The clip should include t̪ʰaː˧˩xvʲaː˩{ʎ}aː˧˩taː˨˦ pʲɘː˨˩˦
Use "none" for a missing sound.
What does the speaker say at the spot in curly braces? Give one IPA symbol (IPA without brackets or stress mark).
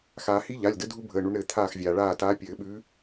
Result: ɭ